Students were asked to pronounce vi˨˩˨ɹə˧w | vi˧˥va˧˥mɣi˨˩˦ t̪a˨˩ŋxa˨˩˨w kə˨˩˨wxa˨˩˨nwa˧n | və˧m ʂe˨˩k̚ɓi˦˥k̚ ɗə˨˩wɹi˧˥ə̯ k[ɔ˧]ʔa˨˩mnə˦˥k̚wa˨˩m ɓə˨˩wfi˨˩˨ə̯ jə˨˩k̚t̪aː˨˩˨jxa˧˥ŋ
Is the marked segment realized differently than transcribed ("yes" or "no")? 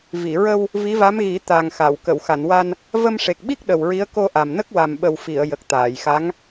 yes